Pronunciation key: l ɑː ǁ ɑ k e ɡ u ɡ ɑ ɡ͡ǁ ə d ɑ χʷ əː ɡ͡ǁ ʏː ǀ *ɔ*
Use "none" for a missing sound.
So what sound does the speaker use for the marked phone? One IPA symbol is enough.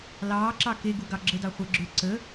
ə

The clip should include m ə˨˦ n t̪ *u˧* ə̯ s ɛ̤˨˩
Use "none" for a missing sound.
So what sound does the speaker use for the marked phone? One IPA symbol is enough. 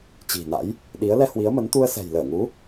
u˧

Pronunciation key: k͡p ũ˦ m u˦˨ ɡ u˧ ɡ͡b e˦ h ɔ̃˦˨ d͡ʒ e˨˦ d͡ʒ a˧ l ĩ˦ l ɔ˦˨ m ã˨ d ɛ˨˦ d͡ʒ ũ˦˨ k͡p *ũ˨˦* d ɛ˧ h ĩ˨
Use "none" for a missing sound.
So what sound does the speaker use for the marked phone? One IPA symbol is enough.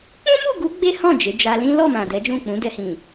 ũ˨˦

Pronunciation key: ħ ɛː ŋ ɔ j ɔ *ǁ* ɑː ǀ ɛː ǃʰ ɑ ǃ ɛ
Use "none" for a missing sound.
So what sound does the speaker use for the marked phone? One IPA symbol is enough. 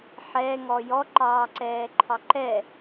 ǃ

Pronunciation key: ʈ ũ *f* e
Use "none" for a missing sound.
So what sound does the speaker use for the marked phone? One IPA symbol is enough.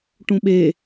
ɓ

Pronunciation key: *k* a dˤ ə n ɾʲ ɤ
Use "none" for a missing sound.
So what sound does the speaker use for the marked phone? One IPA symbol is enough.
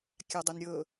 kʲ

